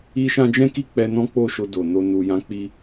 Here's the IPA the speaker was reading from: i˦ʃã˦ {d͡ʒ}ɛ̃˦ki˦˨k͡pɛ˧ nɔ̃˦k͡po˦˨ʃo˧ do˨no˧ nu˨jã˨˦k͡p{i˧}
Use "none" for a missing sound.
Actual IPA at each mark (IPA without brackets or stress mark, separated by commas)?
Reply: d͡ʒ, i˧